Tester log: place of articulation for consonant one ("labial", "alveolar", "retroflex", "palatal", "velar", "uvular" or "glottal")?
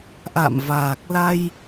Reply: glottal